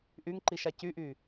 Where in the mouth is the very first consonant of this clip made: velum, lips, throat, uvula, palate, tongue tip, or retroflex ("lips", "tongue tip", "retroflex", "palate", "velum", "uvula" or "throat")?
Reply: throat